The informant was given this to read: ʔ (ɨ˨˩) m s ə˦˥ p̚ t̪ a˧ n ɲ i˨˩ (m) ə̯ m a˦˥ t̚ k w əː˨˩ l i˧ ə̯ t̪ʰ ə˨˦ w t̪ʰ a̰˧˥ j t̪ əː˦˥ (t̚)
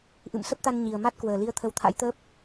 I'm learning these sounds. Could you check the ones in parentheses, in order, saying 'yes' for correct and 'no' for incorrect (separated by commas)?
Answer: no, no, no